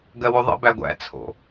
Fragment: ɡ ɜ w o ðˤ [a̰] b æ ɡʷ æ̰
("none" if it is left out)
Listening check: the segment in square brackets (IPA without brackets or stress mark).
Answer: ə̰